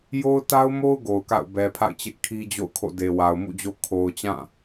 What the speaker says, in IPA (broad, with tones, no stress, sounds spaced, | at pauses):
j o˦ ʊ̯ t a˦ ʊ̯ m o˦ ʊ̯ ɡ o˨ ʊ̯ k a̰˦˨ ʊ̯ b ɛ˨ pʰ a̰˦˨ ɪ̯ t͡ɕ ɪ˦ ʔ kʰ i˦ d͡ʑ o̰˦˨ ʊ̯ kʰ o̰˦˨ d e˨ w a˨ ʊ̯ m ṵ˦˨ d͡ʑ o˦ kʰ o˨ ʊ̯ t͡ɕ ã˦˨